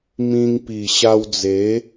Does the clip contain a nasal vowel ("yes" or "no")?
yes